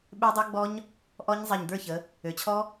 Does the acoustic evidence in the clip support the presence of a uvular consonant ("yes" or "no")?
no